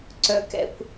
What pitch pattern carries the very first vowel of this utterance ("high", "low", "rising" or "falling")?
high